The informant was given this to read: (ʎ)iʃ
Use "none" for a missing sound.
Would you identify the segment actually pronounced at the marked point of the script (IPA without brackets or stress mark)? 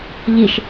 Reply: ʎ